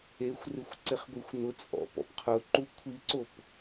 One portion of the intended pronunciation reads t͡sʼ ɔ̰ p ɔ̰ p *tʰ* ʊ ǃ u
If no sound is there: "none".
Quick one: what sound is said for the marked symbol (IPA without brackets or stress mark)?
qʰ